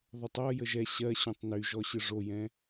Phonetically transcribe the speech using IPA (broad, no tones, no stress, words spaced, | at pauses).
ðˤotˤɔ jəʒɛ ɕɜ ɕõtˤnyʒɔɕɯ ʐojɛ̃